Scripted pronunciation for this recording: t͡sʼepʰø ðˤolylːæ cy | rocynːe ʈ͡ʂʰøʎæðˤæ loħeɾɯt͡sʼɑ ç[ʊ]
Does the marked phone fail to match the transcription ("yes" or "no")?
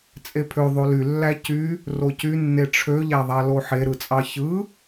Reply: yes